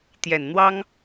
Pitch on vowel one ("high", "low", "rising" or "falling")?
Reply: low